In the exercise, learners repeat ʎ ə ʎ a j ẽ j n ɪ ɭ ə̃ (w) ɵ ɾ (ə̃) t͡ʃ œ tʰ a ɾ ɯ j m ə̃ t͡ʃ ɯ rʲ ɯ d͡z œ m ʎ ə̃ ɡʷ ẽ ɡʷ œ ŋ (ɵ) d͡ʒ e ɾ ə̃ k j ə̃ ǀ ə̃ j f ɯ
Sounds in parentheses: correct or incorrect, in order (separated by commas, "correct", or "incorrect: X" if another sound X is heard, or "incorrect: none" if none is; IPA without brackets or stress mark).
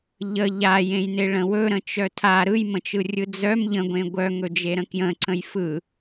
correct, correct, correct